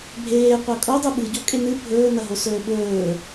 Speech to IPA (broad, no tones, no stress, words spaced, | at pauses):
bʱeːqʷɐ kʼodˤu ɓɨɟokʼe nɨ bʱɵːnɐɦosɵː ɓɵː